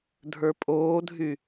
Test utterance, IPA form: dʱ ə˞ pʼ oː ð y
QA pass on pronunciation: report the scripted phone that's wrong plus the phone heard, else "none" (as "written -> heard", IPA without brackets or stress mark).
ð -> dʱ